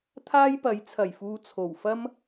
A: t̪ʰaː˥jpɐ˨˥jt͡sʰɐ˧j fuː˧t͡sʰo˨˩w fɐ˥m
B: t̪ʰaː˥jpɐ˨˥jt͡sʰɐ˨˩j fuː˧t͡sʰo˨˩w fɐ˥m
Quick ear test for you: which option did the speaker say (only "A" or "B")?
B